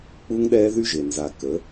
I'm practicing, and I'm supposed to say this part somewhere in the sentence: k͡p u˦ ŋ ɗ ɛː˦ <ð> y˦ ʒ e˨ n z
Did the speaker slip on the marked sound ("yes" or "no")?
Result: no